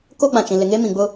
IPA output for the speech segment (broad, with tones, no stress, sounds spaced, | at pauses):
k o˦ ɡ͡b ã˨ t͡ʃ ĩ˨ l ɪ˨ ŋ eː˦ m ĩ˨ ɡ͡b ʊ˦